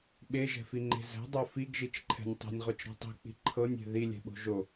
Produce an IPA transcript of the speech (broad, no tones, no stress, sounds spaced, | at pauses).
ɓ e ʒ ɛ̤ f i ŋ͡ǃ e̤ z ɛ̤ dˤ o f i ɡ ʒ i t͡ʃ ǃʰ ɛ̤ nʲ tˤ e̤ nʲ ʁ o t͡ʃ ɾ ɛ̤ tˤ i̤ k͡p i̤ ǃʰ ɤ nʲ e̤ ð i lʲ ɛ̤ ɓ o̤ ʒ o